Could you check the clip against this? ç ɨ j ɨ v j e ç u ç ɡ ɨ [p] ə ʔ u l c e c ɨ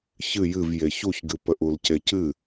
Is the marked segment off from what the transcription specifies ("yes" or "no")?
no